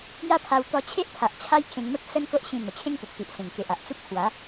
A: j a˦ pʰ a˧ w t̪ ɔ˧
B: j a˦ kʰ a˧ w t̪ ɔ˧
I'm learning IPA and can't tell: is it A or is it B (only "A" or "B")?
A